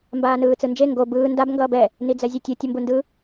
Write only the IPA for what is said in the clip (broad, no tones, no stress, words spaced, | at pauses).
mbaːnɯːt͡sɯnd͡ʒe ŋɡo bɯː ndab ŋɡʌːbɛ | nid͡zɛzʲetʲɯ tʲʌmbundɯ